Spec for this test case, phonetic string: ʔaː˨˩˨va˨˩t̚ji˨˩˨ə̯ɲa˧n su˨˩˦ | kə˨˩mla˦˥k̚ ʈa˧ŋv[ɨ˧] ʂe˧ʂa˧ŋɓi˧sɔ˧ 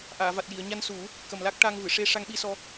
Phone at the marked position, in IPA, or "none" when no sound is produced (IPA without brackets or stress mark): ɨ˨˩˨